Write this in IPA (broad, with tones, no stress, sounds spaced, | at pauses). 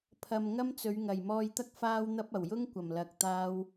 pʰ ɐ˨ m ŋ ɐ˥ m t͡s ɵ˨˧ ɥ ŋ ɐ˨˩ j m ɔː˧ j t̪ ɐ˥ k̚ f aː˥ w n̪ ɐ˥ p̚ ɐ˨˩ w j ʊ˥ ŋ kʷ ɐ˨˩ m l ɐ˧ k̚ t̪ aː˥ w